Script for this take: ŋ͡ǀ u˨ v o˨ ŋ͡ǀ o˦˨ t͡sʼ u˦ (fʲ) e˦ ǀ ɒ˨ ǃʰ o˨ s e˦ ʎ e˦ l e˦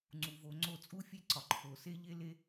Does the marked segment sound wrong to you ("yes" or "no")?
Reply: no